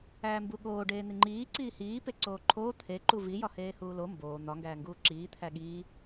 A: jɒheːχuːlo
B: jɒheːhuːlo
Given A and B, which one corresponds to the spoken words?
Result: B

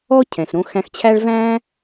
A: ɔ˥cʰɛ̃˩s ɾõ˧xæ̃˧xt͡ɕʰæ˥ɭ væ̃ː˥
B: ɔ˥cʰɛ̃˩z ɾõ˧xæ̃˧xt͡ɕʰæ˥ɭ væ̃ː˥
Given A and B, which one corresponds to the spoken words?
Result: A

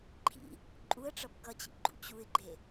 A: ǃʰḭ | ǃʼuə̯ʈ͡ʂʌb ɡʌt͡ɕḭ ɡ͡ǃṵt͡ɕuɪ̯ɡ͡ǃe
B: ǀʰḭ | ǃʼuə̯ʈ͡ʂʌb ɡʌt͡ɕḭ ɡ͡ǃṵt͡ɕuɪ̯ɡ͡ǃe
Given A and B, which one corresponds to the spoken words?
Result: A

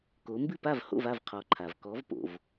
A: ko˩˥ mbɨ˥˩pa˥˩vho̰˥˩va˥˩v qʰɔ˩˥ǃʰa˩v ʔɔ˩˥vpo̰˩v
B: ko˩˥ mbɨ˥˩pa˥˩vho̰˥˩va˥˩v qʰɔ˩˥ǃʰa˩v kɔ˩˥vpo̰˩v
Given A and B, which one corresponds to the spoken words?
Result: B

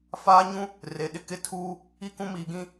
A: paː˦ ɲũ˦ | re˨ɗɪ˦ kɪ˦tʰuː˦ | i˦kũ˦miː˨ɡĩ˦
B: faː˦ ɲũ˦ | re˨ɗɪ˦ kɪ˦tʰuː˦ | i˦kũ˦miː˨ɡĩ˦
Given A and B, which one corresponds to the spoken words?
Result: B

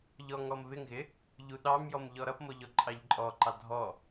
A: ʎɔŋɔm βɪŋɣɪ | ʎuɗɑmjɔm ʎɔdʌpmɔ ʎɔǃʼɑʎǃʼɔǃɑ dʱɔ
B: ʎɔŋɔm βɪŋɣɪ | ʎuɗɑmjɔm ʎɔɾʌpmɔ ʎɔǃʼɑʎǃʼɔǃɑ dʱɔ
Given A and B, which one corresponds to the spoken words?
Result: B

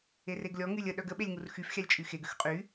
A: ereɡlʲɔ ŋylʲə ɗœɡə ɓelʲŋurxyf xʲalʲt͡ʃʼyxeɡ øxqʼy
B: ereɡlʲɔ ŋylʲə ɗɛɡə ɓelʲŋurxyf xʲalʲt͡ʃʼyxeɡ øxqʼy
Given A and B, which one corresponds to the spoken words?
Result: A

